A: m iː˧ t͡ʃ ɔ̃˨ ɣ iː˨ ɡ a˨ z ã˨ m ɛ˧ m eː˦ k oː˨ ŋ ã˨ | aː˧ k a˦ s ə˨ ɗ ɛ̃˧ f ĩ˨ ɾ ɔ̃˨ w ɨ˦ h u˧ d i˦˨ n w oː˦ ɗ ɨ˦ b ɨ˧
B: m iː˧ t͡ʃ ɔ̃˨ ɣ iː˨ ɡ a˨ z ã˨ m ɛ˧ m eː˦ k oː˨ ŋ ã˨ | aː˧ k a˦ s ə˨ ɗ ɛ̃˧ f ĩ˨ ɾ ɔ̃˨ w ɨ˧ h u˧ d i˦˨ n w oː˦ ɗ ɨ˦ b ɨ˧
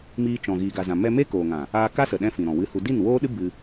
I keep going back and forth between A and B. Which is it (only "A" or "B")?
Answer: B